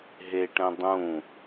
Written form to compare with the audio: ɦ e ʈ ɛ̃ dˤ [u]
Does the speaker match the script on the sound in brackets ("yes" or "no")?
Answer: no